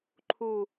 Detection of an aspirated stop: present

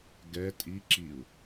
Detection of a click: present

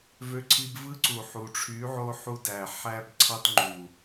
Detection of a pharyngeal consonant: present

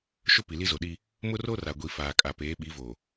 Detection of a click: absent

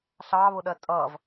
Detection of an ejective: present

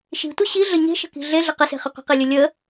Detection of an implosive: absent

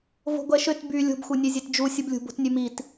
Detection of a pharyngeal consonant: absent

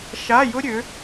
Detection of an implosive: absent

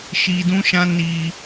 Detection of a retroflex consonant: absent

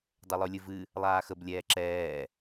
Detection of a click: present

